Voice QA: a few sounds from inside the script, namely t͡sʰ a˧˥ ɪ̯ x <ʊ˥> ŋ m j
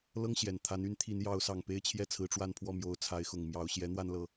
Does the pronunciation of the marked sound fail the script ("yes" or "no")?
yes